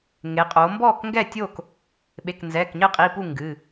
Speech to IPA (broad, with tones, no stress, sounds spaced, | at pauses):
ŋ e˩˧ qʼ o˩˧ m b ɔ˥˨ k ŋ ɡ ɛ˥˨ tʲ o˥˨ k | ɓ e˩˧˩ k n z ɛ˩˧˩ k ɲ ɘ˥˨ qʼ i˩˧˩ p u˥˨ ŋ ɡ ɨ˩˧˩